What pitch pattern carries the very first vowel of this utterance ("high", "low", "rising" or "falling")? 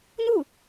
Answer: falling